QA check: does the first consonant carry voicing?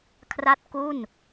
no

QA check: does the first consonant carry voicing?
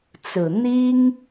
no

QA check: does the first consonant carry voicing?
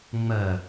yes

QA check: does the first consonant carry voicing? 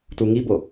no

